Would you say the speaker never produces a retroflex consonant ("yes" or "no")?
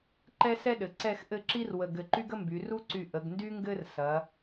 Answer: yes